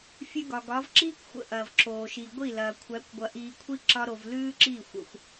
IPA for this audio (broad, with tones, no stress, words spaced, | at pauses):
fʲʉ˧ɡɒ˨ɡɒ˨˦v ǁiː˦kʷxʷə̰˨ ʔɐː˨v ǁoː˨ʃi˨ ɡʷi˦˨lɐː˨kʷʰæ˨˦kʷɡʷɐ˧ ʔiː˧kʷʰi˦ ǁɒ˦ɾo˧v lʉː˦ǁiː˦˨xʷə̰˧xʷ